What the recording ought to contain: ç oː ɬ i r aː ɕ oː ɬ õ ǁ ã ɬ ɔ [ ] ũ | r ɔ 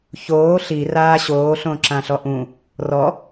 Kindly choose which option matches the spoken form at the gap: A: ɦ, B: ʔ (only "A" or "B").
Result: B